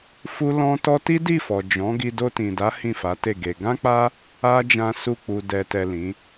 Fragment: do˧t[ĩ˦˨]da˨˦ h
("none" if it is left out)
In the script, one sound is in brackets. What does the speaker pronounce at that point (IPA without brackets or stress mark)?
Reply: ĩ˨